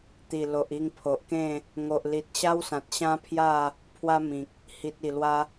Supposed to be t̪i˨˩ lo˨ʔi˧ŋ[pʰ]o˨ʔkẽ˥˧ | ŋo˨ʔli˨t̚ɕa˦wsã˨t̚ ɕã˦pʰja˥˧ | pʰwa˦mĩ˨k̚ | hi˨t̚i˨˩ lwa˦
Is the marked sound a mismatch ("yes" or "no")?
no